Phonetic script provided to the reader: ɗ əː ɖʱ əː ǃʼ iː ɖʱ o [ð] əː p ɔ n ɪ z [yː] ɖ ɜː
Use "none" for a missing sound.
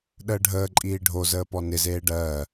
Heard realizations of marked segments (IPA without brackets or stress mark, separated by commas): z, eː